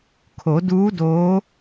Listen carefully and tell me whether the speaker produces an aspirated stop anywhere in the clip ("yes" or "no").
yes